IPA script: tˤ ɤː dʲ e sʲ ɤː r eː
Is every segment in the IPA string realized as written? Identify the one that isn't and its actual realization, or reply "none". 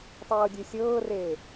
none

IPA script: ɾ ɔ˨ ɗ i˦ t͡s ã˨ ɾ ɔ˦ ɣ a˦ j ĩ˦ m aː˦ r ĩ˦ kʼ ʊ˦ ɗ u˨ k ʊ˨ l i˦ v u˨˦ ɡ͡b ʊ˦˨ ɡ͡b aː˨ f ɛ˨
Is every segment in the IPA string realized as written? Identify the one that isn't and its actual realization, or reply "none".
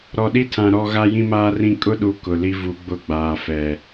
t͡s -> tʰ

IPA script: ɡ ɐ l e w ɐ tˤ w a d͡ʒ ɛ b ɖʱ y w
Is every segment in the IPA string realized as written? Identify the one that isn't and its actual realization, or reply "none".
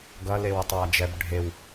y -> e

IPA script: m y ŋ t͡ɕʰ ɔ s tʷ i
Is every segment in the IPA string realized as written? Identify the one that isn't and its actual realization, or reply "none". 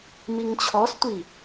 y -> i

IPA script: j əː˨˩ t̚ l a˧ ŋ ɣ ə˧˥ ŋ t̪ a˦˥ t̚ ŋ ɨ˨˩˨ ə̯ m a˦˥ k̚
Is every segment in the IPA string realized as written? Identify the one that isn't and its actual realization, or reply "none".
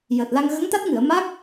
none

